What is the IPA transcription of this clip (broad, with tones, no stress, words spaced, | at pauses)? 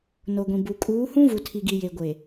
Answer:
no˨ɡʷĩ˨bu˨ kʼuː˨˦ hũ˦vu˨tʰi˨ɡi˨ je˨ɡʷe˨